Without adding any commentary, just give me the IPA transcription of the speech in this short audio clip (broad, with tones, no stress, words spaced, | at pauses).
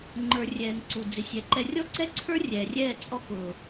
ŋ͡ǃə˞˨rʲɛː˨ŋ ǀu˨ d͡zɪ˨sʲɛ˨˦ǃɛ˧ rʲɔ˦ǀɛ˦ǀʰə˞˦ rʲɛː˨rʲɛː˦˨ t͡sʼɔ˦ kʊː˨